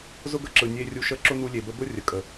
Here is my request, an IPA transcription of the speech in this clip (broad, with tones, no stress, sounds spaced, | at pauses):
z ʊ˦ ɡ ə˧ ǁ ɯ˨ nʲ e˧ rʲ u˧ ʃ ə˦ ǁ ʊ˦ n u˧ lʲ e˨ b ə˧ b ʊ˦ rʲ ə˨ kʼ ə˨